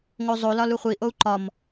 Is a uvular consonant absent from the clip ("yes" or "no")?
no